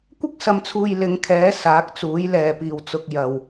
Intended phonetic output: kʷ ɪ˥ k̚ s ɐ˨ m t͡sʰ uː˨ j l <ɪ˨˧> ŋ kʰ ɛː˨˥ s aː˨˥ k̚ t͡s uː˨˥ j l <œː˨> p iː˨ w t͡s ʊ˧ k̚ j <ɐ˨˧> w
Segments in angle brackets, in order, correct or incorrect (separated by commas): correct, incorrect, incorrect